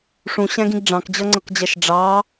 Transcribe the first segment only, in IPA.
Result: ʂ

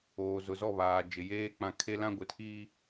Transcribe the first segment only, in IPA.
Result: oː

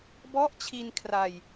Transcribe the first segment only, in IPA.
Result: b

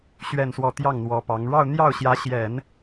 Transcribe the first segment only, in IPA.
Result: ɕ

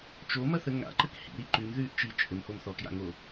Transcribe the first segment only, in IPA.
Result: t͡ʃ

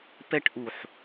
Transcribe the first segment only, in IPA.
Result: p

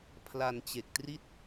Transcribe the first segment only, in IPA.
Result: pʰ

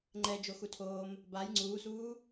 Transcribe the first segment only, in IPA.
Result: ŋ͡ǃ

